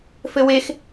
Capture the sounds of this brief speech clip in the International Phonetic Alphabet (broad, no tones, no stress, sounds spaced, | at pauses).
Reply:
f ɘ w e x